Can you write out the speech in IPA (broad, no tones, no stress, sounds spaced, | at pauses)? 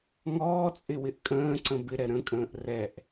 ŋ ɔː t͡sʼ ɪ w ɪ ʔ kʼ ə̃ː ǀ ə̃ b ɪ ɾ ɛ ɾ ə̃ kʼ ə̃ː ʔ r ɛ ʔ